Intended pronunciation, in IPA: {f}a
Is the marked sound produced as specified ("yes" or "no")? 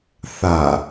no